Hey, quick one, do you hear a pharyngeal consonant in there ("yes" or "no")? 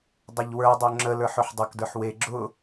yes